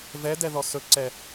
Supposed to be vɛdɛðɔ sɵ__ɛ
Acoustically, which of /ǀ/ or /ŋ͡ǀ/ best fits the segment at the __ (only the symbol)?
ǀ